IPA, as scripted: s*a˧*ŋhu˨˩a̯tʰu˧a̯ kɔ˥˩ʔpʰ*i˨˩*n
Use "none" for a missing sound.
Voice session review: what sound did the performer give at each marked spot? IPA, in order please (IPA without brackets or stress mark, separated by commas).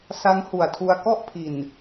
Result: a˦˥, i˨˩